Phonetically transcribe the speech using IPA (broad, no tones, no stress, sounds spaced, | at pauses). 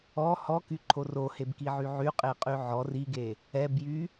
ɔ h ɔ k y ǃʰ o r o h e b k i ʕ y ʕ y qʼ e qʼ y ʕ ɔ r i ɡ e | ɛ b j y